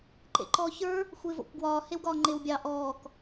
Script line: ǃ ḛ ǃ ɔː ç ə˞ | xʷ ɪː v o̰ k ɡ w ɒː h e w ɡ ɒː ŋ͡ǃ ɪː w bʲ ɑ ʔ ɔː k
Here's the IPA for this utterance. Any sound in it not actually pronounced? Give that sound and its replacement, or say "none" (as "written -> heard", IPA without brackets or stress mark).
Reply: none